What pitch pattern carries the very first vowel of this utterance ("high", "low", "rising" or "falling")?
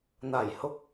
low